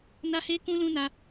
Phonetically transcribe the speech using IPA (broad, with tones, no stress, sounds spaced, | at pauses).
n a˦ h e˦ k ũ˦ l ũ˦ n a˦